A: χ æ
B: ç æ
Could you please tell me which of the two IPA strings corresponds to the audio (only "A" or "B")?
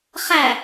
A